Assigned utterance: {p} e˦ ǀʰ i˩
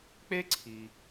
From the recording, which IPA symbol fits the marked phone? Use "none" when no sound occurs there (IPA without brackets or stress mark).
k͡p